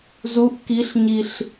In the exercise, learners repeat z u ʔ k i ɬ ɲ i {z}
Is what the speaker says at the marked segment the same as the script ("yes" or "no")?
no